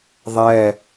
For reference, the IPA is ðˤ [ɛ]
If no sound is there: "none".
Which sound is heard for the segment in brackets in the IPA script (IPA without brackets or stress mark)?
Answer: ɛ